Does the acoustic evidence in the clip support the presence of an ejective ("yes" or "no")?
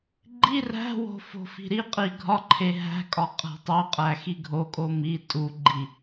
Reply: yes